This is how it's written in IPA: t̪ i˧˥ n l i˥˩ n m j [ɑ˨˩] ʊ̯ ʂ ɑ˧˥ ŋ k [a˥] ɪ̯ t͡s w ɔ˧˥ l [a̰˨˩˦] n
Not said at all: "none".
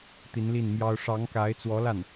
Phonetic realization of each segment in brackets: ɑ˥, a˧˥, a˥˩

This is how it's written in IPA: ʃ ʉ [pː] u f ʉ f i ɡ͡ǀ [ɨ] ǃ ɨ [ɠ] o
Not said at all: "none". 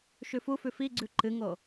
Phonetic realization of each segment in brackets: f, ʉ, ŋ

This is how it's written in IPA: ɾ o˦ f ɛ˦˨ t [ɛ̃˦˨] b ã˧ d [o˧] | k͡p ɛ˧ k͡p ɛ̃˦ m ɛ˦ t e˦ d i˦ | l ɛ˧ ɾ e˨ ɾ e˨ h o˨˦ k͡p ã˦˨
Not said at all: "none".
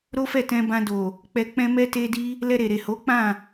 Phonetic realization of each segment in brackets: ɛ̃˧, o˨

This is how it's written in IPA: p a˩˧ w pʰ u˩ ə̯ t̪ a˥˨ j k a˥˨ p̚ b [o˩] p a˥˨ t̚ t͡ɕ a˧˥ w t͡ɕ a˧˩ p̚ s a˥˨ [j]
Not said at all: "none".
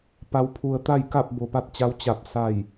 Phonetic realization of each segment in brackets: o˩, j

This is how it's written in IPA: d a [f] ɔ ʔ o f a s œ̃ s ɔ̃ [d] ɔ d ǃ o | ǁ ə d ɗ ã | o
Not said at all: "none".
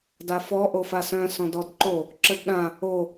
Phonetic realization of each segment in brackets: f, d

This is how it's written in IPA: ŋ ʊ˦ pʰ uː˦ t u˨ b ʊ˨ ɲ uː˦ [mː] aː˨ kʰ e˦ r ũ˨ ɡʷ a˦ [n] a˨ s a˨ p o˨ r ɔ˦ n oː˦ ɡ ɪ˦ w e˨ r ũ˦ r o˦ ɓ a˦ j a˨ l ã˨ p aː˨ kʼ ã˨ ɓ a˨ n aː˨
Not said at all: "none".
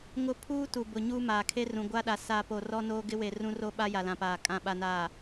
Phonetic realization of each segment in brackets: m, ɗ

